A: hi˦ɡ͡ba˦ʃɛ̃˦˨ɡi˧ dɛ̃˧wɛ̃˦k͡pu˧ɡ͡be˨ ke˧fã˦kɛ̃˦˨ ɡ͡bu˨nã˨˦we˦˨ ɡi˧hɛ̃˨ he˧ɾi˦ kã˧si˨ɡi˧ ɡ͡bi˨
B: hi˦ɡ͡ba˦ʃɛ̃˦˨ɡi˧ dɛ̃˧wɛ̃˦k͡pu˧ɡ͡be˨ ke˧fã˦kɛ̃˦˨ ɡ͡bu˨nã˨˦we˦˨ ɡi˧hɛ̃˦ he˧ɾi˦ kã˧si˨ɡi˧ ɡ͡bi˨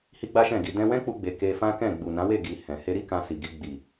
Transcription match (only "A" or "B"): A